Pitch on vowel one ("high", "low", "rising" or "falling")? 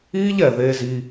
high